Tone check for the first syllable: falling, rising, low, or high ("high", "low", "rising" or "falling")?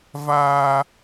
high